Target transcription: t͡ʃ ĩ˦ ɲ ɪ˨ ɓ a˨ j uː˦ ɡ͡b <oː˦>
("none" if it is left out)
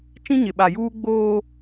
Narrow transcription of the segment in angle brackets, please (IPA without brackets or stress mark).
oː˦